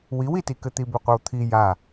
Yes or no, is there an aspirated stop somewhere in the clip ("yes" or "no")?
yes